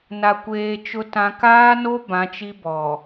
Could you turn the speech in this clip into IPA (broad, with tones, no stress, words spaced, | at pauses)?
na˨kʷeː˨ t͡ʃʊ˨tã˨ kaː˦no˦ bã˨˦t͡ʃi˦bɔ˨